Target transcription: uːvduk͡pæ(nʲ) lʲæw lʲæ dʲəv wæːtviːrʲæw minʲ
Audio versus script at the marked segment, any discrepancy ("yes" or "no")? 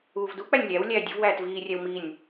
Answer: no